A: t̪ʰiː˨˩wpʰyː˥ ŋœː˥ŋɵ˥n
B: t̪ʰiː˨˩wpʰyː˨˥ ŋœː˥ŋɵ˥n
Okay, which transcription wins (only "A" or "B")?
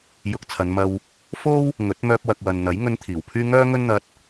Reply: A